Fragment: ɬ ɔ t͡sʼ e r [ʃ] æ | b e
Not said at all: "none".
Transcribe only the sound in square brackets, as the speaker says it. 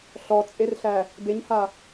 ɬ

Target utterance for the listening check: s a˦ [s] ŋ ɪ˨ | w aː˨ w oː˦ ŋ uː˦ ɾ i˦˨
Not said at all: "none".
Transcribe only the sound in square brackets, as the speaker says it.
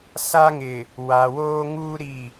none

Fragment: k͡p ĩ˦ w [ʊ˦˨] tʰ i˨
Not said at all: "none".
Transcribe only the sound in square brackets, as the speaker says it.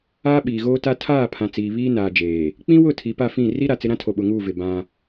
ʊ˦˨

